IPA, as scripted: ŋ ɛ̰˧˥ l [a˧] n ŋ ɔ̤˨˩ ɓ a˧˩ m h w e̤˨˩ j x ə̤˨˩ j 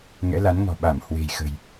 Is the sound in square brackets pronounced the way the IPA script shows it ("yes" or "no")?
no